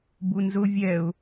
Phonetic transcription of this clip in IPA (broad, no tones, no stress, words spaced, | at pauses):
bunzʊ vʲɛʊ̯